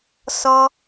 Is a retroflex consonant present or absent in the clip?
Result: absent